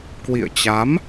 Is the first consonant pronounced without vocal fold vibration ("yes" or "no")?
yes